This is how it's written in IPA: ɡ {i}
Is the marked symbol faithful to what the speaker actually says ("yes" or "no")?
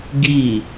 no